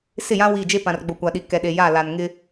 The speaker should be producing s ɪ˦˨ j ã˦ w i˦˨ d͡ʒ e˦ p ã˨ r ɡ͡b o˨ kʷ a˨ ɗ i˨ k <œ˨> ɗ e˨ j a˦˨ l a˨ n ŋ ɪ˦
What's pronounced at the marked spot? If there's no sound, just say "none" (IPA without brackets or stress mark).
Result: ɛ˨